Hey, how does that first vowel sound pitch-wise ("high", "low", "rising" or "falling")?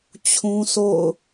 high